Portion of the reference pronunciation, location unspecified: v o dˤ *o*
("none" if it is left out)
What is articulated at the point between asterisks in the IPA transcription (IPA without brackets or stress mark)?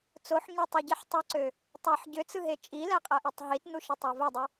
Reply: u